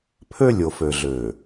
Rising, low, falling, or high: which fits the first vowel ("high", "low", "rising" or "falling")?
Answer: high